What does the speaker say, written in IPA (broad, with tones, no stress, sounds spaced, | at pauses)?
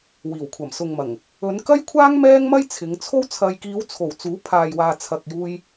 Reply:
w iː˨˩ w kʷʰ ɐ˨˩ m s ʊ˨ ŋ m ɐ˨˩ ŋ | ɵ˨˧ n k ɐ˥ j kʷʰ aː˥ ŋ m ɛː˥ ŋ m ɐ˥ j t͡sʰ ɪ˨˧ ŋ t͡sʰ o˥ w t͡sʰ ɐ˧ j k iː˨˧ w t͡sʰ o˨˩ w t͡s uː˨˥ pʰ aː˨ j w aː˨ t͡sʰ ɐ˨ k̚ j uː˧ j